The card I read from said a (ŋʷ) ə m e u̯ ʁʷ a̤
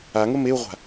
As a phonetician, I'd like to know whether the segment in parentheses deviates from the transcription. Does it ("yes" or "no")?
yes